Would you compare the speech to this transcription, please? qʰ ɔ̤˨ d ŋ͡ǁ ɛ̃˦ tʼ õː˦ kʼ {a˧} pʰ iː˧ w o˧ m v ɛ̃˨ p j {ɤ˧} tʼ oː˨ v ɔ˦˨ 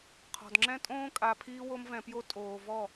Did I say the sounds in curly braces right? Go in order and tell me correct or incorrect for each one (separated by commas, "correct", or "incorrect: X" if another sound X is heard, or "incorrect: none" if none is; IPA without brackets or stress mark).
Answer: correct, incorrect: o˧